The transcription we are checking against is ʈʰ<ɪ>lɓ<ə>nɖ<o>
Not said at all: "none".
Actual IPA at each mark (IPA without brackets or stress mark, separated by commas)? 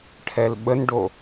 ɛ, ə, o